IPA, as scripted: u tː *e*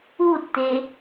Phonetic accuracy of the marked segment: correct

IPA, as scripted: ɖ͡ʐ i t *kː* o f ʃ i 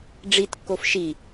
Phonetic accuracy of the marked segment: correct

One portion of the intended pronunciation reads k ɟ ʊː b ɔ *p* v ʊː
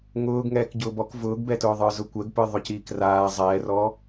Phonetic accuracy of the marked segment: incorrect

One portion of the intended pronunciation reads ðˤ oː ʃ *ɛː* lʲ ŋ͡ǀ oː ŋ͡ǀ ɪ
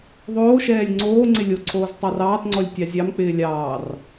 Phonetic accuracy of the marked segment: correct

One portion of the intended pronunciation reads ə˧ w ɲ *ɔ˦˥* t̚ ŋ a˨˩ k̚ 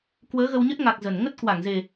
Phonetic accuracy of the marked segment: incorrect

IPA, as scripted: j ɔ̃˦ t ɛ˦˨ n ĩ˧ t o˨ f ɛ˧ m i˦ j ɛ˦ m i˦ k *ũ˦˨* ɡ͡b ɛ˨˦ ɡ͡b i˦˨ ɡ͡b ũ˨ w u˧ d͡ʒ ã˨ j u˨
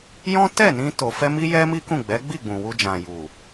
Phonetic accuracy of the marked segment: correct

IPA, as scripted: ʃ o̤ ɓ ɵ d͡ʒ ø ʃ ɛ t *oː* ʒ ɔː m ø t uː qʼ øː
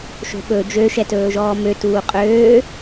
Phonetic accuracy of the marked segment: incorrect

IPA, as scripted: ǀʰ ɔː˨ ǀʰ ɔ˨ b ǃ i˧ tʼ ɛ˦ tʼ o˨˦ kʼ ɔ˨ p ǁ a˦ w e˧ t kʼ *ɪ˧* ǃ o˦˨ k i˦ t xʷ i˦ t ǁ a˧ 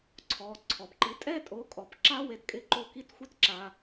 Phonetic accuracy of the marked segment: correct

